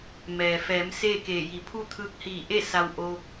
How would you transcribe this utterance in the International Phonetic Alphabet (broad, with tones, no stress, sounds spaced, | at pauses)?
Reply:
m ɛː˩ f ɛː˩˧ m s eː˥˨ k eː˧˩ j i˩˧ pʰ u˥˨ t̪ʰ ɯː˧ k̚ h iː˧˩ ʔ e˥˨ s a˧ w ʔ oː˧ k̚